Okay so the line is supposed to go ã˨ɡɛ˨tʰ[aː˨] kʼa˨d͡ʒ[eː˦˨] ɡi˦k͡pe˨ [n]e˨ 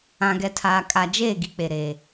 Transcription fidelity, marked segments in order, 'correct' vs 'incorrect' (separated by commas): correct, correct, incorrect